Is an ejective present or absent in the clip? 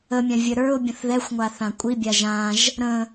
present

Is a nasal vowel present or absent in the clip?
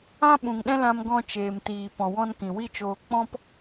present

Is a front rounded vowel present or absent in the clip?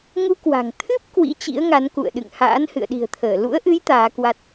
absent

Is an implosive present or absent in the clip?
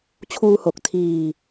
absent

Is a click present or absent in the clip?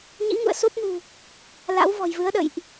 absent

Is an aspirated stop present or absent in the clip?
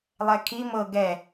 present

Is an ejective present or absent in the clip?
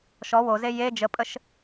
present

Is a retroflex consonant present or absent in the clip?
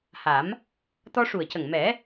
present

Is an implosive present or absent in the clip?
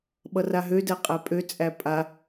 present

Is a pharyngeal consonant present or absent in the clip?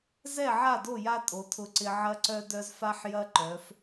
present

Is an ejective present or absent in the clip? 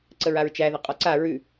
present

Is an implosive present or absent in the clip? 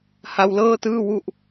absent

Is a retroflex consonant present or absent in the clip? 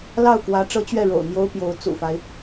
present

